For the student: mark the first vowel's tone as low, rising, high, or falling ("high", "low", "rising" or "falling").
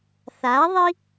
rising